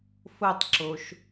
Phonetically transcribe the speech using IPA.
f o tˤ ǁ o ʃ

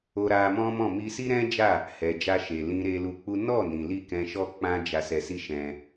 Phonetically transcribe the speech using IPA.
o˧ ɾ a˧ m ɔ̃˦ m ɔ̃˦˨ m i˧ s i˦ ɾ ɛ̃˦ d͡ʒ a˦˨ | h ɛ˨ d͡ʒ a˧ ʃ e˨ l ĩ˧ ɾ e˧ l u˧ k͡p u˦ n ɔ˦˨ n ĩ˨ l i˧ k ɛ̃˧ ʃ ɔ˦ k͡p ã˦ d͡ʒ a˧ s ɛ˧ s i˦ ʃ ɛ̃˦

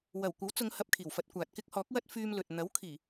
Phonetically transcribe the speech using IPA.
w ɐ˨˩ w kʷ ɐ˨˥ w t͡s ʊ˨˧ ŋ h ɐ˧ p̚ kʰ iː˨˩ w f ɐ˧ t̚ kʷ aː˨ t̚ k ɪ˥ k̚ h ɔː˨˥ k̚ w ɐ˥ t̚ f yː˧ m l ɵ˨ t̚ n̪ ɐ˨˥ w kʰ iː˨˩

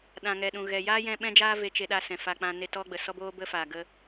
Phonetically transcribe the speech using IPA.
ɗ ã˨ ŋ ɛ˨ ɗ ũ˨ ɣ ɛ˨ j aː˦ j ɛ̃˧ ɓ ɛ̃˧ d͡ʒ aː˧ v e˧ t͡ʃ e˧ ɗ a˧ s ɛ̃˨ f a˧ k͡p ã˧ n e˦ t ɔ˦ ɡ͡b ə˨ s ɔ˦ b oː˦ b ə˦ f aː˨ ɡ ə˦

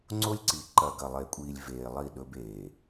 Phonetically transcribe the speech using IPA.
ŋ͡ǀ o˦ lʲ ǀ i˨ ǃ ɐ˨ ɡ ɐ˨ lˠ e˨ kʷʼ iː˨ lʲ v eː˨ lˠ i˦˨ ɗ ɵ˦ b eː˨

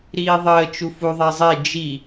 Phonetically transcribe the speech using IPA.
ɾ iː ðˤ əː t͡ʃ u f u ðˤ ɛ zˤ e d͡ʒ i

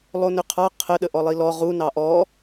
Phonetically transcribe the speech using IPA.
lˠ o n ʏ qʰ ɑ qʰ ə ɗ ə ʔ ɔ lˠ i l ɔ ʁ u n ɑ ʔ ɔ

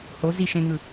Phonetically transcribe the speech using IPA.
h o z i ʃ ẽ ŋ ɯ

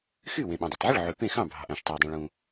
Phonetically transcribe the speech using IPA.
x y˥˩ w ẽ˩ ɓ õ˩ dˤ y˩ tˤ ʕ ɯ˥˩ ɭ ʕ y˩ p ẽ˥˩ x ɑ̃˥˩ bʱ ɑ̤˩ ʔ æ̃˩ ʃ tˤ æ˩ w dˤ ĩ˩ ɭ ũ˩

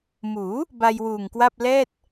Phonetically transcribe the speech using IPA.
m uː˩˦ | b a˧ j w uː˨˩ ŋ k w a˥˩ p̚ l ɛː˥˩ t̚

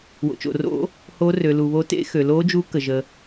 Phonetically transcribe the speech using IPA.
w o̰˩ t͡ʃ o̰˩ r o̰˧˥ | h o˧˥ r ø˩ l u˩ β o˧˥ t ḛ˧˥ x ø˩ l o˧˥ d͡ʒ u˧˥ k ə˩ ʒ ə˩

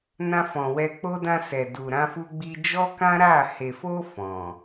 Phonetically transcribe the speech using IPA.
n ã˧ f ɔ̃˨ w ɛ˧ k͡p o˦ d ã˧ s ɛ˨ d u˨ ɾ ã˧ f u˧ ɡ͡b i˧ d͡ʒ ɔ˦ k ã˦ ɾ a˦˨ h e˨ f o˧ f ɔ̃˨

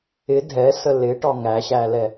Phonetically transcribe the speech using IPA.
ɪ dʱ ɛ s ə l ɪ ʈ ɒ ŋ æ ɕ æ l ɛ

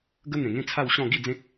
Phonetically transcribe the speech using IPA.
ɡ ə˦ n̪ ẽ˨˩ ŋ ẽ˦ t͡sʰ a˥˧ w ɕ ɔ̃˥˧ ɡ i˥˧ d͡z ẽ˦ k̚

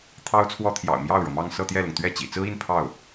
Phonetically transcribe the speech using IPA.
t̪ʰ ɑ˥ ʊ̯ t͡sʰ w ɔ˥ t̪ʰ j ɑ̰˨˩ ʊ̯ m j ɑ˥˩ ʊ̯ ɻ ɤ˩ m ɑ˥˧ ŋ s ɤ˥˧ t̪ j ɛ˥˩ l ʊ˩ ŋ t̪ ɥ ɛ˥˩ t͡ɕ ḭ˨˩ t͡s ɹ̩˥ i˥˧ n pʰ ɑ˥˩ ʊ̯

